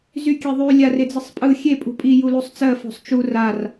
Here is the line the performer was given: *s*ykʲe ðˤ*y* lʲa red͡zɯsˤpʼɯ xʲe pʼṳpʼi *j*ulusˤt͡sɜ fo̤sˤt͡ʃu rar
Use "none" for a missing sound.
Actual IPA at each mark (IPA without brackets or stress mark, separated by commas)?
z, y, j